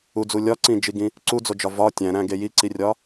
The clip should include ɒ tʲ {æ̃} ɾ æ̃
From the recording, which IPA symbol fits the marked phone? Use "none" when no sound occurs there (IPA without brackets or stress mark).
æ̃